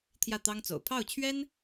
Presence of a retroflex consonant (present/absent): absent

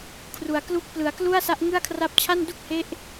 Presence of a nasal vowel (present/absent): absent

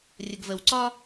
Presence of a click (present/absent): present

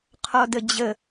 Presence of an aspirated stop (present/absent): present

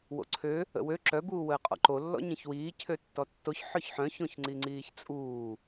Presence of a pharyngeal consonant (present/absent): present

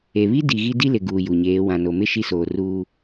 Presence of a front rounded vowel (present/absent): absent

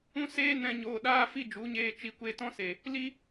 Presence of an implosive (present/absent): present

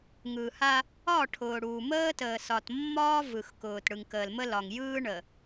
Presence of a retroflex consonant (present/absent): present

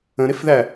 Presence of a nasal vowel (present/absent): present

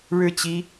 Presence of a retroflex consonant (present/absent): present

